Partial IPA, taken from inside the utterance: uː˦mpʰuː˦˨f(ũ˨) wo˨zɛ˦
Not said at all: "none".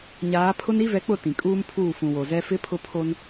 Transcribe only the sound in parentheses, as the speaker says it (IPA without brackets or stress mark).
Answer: ũ˨